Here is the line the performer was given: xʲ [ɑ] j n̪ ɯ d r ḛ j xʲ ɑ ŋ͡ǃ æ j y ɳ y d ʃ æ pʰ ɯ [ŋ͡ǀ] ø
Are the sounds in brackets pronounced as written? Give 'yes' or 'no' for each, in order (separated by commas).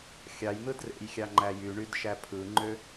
yes, no